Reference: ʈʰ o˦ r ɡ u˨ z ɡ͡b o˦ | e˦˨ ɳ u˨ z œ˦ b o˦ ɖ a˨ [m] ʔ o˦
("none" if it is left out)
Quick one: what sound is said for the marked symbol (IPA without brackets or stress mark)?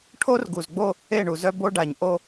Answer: ɲ